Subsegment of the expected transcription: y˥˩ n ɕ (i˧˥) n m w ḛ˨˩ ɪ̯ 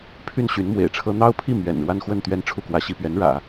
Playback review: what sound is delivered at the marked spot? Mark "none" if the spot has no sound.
y˧˥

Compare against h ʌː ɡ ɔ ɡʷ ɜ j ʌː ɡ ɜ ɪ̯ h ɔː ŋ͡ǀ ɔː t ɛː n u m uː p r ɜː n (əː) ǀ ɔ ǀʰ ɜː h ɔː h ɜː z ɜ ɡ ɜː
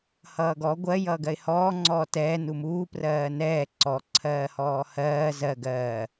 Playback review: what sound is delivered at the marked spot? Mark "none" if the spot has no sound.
ɛː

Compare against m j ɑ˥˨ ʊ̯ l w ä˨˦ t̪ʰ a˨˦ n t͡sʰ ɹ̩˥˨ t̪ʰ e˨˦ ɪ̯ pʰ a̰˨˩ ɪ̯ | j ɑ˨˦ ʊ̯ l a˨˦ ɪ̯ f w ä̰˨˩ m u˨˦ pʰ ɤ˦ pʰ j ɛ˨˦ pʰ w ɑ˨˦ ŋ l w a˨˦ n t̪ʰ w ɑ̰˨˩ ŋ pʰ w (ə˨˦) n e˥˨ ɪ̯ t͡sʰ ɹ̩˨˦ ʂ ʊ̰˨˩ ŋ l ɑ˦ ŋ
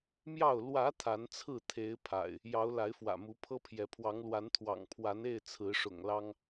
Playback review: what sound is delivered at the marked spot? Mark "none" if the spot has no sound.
a˨˦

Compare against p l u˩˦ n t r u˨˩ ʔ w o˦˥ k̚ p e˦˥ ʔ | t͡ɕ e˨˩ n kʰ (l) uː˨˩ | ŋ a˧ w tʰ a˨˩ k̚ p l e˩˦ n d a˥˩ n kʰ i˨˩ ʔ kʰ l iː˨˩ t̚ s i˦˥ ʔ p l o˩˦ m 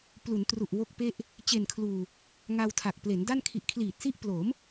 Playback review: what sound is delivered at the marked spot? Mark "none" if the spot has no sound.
l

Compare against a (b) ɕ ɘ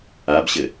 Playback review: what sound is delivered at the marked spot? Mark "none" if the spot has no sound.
b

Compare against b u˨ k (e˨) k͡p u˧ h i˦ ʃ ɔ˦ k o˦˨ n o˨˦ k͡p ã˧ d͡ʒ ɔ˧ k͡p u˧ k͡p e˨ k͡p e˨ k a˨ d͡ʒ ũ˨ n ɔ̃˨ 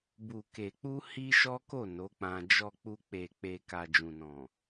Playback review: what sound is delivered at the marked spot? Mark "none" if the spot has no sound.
e˨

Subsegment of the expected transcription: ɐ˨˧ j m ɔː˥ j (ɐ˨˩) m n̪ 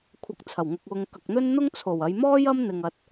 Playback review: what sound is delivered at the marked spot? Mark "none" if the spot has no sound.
ɐ˥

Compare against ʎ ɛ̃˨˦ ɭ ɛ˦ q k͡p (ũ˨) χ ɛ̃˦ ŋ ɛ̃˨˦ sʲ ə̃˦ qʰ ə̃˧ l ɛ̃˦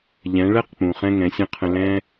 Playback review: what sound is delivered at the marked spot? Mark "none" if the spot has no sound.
ũ˨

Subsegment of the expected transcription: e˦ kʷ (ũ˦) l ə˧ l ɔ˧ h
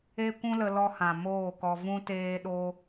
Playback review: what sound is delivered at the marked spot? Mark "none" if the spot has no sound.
ũ˦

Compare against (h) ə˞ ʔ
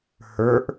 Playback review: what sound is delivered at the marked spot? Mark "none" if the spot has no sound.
h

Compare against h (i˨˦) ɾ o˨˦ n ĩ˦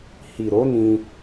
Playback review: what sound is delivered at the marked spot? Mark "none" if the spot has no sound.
i˨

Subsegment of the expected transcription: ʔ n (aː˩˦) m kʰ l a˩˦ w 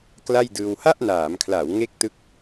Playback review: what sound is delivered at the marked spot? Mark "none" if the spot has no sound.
aː˩˦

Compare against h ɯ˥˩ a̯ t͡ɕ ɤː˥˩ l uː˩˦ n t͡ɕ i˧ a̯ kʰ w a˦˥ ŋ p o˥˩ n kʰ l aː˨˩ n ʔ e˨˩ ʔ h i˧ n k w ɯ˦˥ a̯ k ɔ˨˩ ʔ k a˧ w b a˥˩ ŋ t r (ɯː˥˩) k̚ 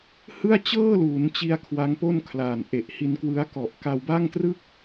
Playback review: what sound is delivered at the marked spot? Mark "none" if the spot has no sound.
ɯ˥˩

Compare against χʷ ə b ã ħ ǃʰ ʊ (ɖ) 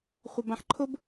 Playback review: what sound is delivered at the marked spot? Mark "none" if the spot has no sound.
b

